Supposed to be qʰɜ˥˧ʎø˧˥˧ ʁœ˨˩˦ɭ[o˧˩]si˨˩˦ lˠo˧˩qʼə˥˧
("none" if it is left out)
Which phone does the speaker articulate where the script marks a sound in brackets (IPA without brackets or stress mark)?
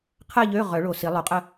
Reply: o˧˩